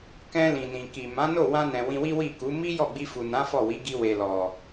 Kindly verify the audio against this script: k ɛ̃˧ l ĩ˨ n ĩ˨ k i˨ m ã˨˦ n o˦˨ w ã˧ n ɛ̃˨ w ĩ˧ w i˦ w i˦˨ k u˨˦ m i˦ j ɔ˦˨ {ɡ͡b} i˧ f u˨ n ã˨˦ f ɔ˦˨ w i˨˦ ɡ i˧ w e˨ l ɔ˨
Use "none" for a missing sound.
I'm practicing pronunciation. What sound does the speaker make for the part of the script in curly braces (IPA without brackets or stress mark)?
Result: ɡ͡b